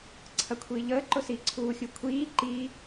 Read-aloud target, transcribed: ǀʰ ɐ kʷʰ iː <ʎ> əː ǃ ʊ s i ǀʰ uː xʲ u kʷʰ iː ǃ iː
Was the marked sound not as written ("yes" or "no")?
no